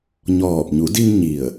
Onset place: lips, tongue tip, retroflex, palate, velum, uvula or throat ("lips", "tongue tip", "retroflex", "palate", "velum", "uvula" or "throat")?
palate